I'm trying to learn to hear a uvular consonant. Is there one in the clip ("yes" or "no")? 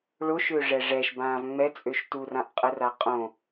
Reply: yes